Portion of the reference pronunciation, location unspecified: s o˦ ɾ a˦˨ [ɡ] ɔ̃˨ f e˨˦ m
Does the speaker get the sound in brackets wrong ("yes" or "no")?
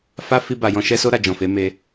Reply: yes